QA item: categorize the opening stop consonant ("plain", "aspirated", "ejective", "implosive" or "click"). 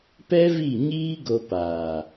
plain